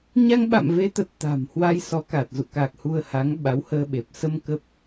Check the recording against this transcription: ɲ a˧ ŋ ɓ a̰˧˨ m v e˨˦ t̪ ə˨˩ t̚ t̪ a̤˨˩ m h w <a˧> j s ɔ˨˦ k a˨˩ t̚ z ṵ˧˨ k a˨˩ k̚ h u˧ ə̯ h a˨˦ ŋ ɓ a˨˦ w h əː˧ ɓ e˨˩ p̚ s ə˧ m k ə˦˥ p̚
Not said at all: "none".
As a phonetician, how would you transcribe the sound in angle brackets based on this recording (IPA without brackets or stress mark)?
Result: a˧